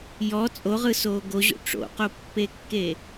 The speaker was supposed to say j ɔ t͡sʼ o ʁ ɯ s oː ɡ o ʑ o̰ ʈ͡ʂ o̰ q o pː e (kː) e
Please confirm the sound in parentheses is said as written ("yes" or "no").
yes